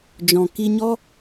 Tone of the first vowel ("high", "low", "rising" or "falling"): low